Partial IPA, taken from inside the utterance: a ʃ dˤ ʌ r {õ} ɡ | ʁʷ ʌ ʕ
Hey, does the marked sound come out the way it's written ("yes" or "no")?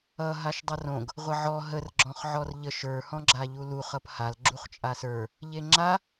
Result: yes